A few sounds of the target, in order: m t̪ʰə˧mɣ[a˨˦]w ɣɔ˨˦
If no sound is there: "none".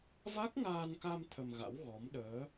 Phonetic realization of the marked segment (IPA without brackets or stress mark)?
a̰˧˥